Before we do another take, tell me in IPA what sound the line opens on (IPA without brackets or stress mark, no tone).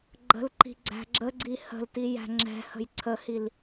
ɡ͡ǃ